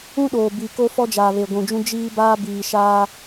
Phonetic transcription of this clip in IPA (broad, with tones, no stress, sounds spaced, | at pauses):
ũ˦ ɗ oː˨ b i˨ k o˦ f ɔ˦ d͡ʒ aː˨ β e˨ ɡʷ ũ˨ d͡ʒ ũ˦ d͡ʒ iː˦ b aː˦ b iː˨ ʃ aː˦